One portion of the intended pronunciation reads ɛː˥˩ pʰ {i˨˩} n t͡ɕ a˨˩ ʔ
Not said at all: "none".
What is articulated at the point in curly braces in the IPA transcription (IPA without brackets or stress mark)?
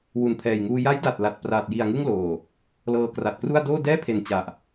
e˨˩